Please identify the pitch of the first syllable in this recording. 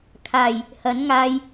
low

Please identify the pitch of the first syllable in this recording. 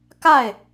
falling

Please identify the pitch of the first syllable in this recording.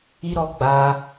high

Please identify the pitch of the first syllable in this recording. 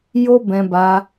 high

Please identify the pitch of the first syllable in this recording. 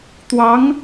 rising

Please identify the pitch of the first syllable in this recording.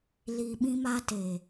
low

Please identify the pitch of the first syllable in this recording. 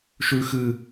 high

